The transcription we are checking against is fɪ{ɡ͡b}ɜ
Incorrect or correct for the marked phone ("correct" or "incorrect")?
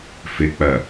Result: incorrect